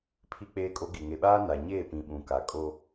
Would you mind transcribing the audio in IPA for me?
pʰ i˦ k͡p eː˦ kʼ o˦ ɡ i˨ ŋ e˨ ɓ aː˦ n a˨ ɲ eː˦˨ p ĩ˨ ɓ ũ˨ k a˨ kʼ o˦

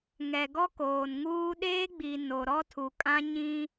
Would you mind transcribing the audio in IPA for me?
ŋ ɛ˨ ɡ ɔ˦ k oː˨ n ŋ uː˦ ɗ eː˦ ɡ͡b i˨ n o˨ ɾ ɔ˦ tʰ u˨ kʼ ã˦ ɲ ĩ˦

